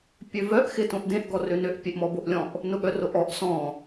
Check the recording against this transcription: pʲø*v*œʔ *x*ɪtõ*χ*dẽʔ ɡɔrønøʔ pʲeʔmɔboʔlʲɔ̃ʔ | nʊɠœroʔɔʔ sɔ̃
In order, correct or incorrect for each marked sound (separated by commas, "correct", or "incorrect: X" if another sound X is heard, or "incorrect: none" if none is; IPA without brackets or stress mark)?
correct, correct, incorrect: ʔ